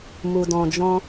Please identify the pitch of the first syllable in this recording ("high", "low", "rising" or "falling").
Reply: low